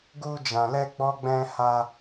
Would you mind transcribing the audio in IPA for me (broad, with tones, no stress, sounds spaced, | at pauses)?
ɡ u˦ d͡ʒ ã˧ l ɛ˦ ɡ͡b ɔ˦ ɡ͡b ɛ̃˦ h a˦